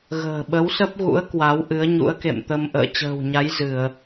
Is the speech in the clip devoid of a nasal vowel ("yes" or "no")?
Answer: yes